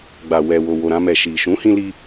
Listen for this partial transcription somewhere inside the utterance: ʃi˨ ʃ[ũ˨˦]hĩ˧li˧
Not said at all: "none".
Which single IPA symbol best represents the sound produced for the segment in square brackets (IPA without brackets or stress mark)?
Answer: ũ˨˦